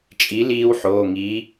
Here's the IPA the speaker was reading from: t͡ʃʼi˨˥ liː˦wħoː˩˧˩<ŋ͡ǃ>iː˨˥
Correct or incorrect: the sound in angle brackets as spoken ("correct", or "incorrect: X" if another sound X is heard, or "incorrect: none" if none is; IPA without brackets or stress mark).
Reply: incorrect: ŋ